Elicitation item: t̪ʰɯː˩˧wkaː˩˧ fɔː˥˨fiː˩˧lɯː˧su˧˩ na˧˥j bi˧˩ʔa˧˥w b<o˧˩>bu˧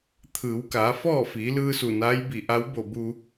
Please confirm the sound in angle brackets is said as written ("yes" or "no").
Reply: yes